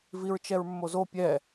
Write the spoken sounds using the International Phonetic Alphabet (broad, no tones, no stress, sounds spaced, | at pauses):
v i ɹ t͡ʃ ɛ ɹ mː o z o pʲ ɛ